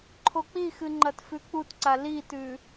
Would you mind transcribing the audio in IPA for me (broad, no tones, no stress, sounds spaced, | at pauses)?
ǃʰ o k͡p i x ɨ ŋ͡ǃ ɐ t f ʉ k͡p u t ǀ a l i t ʉ